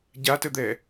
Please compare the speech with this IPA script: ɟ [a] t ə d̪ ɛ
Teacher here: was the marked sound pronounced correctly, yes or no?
yes